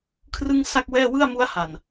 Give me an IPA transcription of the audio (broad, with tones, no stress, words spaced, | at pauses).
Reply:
kʰrɯ˥˩ŋsa˥˩k̚wɛː˥˩ wɯ˥˩a̯mu˦˥a̯ha˨˩n